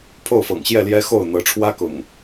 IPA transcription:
pʰo˥˨ʊ̯fɤ̰˨˩ŋɕjɛ˥˨ljɛ˦ xo˥˨ʊ̯ n̪ɤ˨˦ʈ͡ʂʰwä˦kʊ̰˨˩ŋ

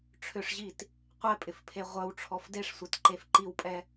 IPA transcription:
ʈ͡ʂʰʏʂʑit | qʷɛpʼɪfpʰe ʁʷœwʈ͡ʂʰɔf deʂsʷetǃef ǃiwpʼɛ

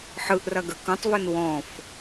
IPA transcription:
ħɯʔrɐɡə kũtˤvun wɔ̃f

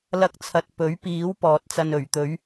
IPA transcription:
lɐ˥k̚t͡sʰɐ˧t̚ pɵ˨˥ɥ piː˨˥w pɔː˨t̚t͡sɐ˧n ɵ˨˩ɥ t̪ɵ˨˧ɥ

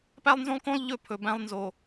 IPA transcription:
pæ˦lˠnzõ˦lˠkõ˦lˠ ʎɵ˦pʰɵ˨ bæ̃˦lˠnzo˨

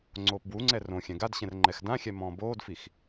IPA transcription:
ŋ͡ǀoːpbwuŋ͡ǀɛ rõ xʲɛ̃ɡadɕɛ̃r ŋ͡ǃɛxdãxʲɛ mɔ̃ːboːdfix

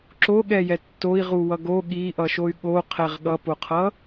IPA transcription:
ǁoɠɛjɛ tːoi̯ʁuwʌ ɡo ɠiʔʌʃoy̯ ɠoqʰɛʁ ɠʌpoqʰʌ

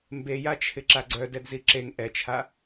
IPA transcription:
mbejat͡ʃʰɪ ǁaɡ͡ǀœdɛdzi ǁeŋ ʔɛt͡ʃʰa

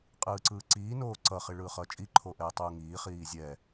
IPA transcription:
qʼɯːǀɯːǀiː noːǀʌ χiɭɯːχʌːt͡ʃʼi ǃʰoʔɛːtˤuːŋiː χiːzʲɛ

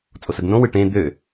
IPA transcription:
t͡sʼosədnõwɯ ʈẽ d̪ø

